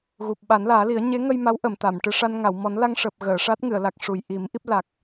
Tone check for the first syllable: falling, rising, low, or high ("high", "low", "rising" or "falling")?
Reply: low